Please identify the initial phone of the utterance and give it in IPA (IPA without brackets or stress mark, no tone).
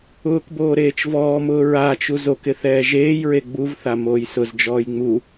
ʊː